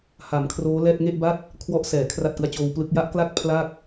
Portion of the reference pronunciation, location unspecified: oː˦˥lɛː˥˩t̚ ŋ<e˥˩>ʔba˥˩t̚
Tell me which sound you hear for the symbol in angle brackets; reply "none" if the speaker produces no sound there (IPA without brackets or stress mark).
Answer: e˥˩